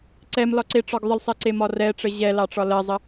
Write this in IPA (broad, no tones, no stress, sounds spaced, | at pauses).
ǀ ɛ m l ɒ ǀ e ʈ͡ʂ ɒ ɡ ðˤ ə l sˤ ɛ ǀ e m ɒ r ɛ ʈ͡ʂ ə ʑ ɛ l ɑ ʈ͡ʂ ɒ l ɜ zˤ ə